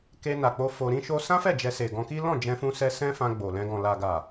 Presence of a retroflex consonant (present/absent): absent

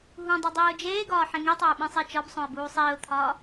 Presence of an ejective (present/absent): absent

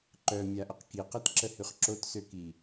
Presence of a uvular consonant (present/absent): present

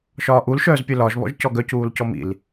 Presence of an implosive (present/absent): absent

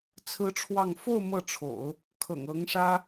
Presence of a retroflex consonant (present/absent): present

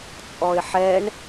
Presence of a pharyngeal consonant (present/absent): present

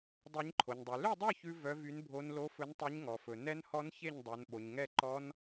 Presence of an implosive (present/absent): present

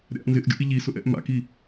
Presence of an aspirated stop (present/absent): absent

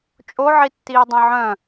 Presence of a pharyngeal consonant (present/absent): present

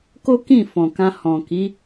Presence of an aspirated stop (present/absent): absent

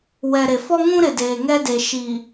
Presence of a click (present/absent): absent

